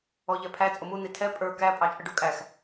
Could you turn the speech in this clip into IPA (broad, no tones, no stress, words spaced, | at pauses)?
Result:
ɔʎɛpʰæ t͡sʼʊmu n̪itʰɛ pʼə˞ kæ pʼɑt͡ʃʼəɖukʼæx